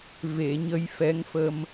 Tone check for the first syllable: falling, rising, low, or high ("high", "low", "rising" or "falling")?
low